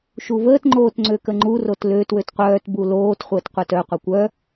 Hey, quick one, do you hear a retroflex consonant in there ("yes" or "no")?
no